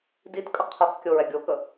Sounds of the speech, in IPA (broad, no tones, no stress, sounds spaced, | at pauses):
d i t kʼ ə qʰ œ q kʲ o ɹ ɛ ɡʲ o k ə